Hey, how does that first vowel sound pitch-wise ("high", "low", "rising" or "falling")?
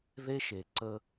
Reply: high